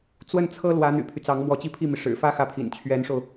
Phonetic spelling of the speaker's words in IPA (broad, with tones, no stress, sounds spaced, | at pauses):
t͡s w ə˥˩ n t͡sʰ ɤ˥ l w ä˧˥ n̪ y̰˨˩ pʰ y˦ t͡s ɑ˧˥ ŋ m w ɔ˧˥ t͡ɕ i˥˧ pʰ i˥˩ m i˩ ʂ ɻ̩˨˩ f ä˥ x ä˥˩ pʰ ḭ˨˩ n t͡ɕʰ ɥ ɛ˧˥ n ʂ o˧ ʊ̯